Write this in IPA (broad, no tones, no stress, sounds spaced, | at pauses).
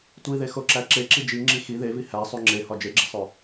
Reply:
tʷ i ð e x o ǁ æ ǁ e ǁ i d͡ʒ i ŋ͡ǁ i x i ð e v i h æ sˤ u ŋ͡ǁ e h ɒ d͡ʒ e ɡ͡ǁ e sˤ o